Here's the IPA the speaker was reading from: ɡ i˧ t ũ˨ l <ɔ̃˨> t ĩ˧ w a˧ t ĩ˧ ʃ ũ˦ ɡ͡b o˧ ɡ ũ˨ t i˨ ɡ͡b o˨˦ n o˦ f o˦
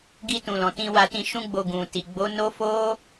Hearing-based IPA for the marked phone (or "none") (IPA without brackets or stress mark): ɔ̃˨